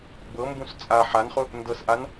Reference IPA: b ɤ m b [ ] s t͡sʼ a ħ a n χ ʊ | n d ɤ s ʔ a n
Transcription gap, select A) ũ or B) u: A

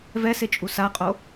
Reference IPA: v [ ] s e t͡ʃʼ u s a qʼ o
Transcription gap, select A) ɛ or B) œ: A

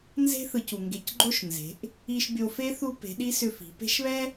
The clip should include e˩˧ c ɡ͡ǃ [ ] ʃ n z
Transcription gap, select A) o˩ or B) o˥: B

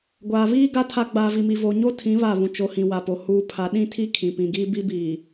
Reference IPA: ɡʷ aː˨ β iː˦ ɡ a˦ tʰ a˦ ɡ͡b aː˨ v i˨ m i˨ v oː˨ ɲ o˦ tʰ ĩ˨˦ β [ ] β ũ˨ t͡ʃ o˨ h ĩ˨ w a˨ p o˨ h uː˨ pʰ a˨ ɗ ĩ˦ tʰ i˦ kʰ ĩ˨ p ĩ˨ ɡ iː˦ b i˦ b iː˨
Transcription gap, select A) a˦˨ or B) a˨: A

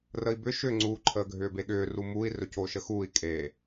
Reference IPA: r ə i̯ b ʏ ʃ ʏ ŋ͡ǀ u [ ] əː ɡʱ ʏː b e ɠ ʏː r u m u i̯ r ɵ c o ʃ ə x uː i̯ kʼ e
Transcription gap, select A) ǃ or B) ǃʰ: B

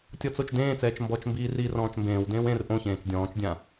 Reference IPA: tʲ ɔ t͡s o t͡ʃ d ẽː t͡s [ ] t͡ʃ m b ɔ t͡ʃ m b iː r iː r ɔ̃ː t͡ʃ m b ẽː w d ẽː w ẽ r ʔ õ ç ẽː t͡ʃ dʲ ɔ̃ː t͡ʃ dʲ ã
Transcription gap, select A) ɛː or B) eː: A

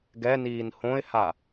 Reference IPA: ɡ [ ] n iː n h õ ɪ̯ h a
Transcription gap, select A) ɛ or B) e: A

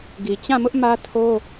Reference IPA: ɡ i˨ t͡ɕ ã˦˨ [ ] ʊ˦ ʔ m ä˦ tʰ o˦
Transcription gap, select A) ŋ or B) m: B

